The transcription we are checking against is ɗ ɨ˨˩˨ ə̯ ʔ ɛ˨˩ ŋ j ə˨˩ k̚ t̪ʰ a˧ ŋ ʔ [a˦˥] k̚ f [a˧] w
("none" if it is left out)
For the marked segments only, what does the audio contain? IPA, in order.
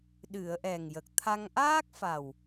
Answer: aː˦˥, a˨˩

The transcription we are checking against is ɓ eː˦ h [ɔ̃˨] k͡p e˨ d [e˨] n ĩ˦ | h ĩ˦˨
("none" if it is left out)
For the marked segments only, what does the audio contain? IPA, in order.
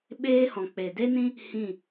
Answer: ɔ̃˨, e˦

